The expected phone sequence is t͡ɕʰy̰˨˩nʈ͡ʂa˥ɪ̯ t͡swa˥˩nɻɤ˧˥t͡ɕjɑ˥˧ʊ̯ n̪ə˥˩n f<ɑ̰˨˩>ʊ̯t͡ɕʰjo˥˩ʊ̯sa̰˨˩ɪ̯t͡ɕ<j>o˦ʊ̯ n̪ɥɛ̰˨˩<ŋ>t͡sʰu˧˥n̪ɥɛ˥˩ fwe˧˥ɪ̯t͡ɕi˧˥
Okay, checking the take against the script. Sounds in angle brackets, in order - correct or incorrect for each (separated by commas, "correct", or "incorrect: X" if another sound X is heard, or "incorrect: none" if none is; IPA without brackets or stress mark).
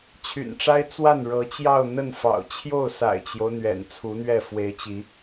correct, correct, incorrect: n